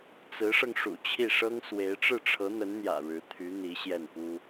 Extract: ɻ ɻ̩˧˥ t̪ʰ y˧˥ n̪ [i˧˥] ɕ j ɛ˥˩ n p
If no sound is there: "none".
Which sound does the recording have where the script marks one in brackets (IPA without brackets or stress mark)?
i˧˥